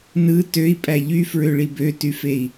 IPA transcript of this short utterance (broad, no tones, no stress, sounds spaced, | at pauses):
n ɯ t ø i̯ pʼ æ ʎ y f ɹ ø ɭ i b ø t y f e i̯